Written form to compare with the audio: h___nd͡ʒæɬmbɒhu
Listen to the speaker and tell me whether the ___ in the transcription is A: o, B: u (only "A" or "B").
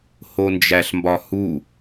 A